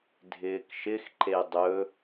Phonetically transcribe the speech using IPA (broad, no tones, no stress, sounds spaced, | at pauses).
dʱ ɪː k ʃ ɪ x ǃ e dˤ ɵ